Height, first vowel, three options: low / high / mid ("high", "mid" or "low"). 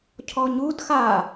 mid